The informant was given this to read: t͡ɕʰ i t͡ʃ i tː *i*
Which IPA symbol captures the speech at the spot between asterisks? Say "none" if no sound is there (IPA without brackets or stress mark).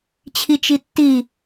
i